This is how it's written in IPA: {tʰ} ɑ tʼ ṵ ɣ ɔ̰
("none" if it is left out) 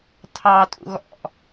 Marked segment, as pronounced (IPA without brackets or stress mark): tʰ